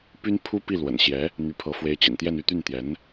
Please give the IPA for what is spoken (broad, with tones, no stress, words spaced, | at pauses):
py˥n pʰu˥pi˥˩ lwə̰˨˩nɕjɛ˧˥ | n̪y˧˥pʰɤ˧˥ fwe˧˥ɪ̯t͡ɕḭ˨˩nt̪jɛ˥˧n y˥˧t̪y˥˩nt̪jɛ˧˥n